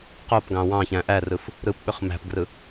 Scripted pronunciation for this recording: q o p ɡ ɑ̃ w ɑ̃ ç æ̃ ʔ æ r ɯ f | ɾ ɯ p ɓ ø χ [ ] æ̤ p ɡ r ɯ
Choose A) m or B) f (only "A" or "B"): A